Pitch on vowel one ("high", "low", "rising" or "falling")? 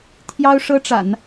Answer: high